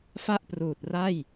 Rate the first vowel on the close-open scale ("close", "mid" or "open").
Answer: open